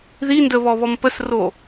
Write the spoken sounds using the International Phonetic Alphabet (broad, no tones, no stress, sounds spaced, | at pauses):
ð i n d ə β ɔ β ɔ m p ə s r o